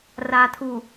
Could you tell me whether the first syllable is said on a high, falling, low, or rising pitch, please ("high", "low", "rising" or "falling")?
low